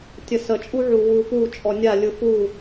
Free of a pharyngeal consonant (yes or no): no